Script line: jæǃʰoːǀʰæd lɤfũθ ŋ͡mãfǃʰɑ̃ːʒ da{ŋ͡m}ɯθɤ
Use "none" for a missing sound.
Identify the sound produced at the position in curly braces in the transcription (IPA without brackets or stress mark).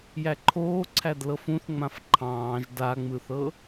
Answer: ŋ͡m